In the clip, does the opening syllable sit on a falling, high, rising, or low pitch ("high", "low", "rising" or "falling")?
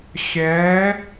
rising